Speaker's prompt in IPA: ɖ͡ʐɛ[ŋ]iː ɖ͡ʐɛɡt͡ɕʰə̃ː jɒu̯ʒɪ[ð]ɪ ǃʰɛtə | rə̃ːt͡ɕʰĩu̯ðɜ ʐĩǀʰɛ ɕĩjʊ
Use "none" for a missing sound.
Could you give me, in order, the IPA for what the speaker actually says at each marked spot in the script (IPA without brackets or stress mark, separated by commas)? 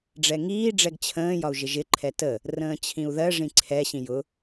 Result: ŋ, ʒ